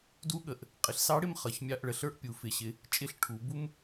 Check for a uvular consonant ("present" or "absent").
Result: present